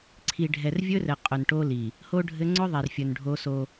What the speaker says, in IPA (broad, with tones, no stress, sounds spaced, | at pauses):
ǀʰ i˨ ɖʱ ɛ˨ r vʲ ɵ˦ r ɘ˨ qʼ ʊ˨ n ʈ o˦ l i˨ | h o˦ ɖʱ ɘ˦ ŋ͡ǀ ʊ˦ ðˤ ɛ˨ r fʲ ɵ˨ n ɖʱ o˦ s o˦